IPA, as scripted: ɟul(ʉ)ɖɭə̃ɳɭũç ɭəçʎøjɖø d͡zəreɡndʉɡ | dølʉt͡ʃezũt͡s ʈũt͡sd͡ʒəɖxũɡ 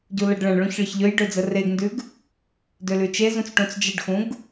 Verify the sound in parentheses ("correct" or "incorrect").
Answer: incorrect